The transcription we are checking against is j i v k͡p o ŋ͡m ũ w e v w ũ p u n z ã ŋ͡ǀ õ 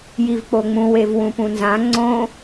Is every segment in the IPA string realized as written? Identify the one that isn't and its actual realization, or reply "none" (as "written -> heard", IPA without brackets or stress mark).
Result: u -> ũ